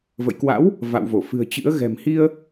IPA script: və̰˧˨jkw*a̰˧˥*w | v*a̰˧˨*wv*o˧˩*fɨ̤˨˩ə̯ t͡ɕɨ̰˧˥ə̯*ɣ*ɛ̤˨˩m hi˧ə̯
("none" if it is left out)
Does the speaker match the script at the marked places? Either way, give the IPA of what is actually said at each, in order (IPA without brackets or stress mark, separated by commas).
a̰˧˥, a̰˧˨, o˧˩, ɣ